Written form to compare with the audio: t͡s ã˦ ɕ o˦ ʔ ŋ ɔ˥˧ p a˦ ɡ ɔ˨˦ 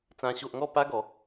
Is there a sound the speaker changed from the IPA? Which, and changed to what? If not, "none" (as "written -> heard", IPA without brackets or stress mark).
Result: none